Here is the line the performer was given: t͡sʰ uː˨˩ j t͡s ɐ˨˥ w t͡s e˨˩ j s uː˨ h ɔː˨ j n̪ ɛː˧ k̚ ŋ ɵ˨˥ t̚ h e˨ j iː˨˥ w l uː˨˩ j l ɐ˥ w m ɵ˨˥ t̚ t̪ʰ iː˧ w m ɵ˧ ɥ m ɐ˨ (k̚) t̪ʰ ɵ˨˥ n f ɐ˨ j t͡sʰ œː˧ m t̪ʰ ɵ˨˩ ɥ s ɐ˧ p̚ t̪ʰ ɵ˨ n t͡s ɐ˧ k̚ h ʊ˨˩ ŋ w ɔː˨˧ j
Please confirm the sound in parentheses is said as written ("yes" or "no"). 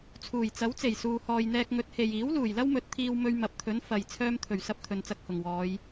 no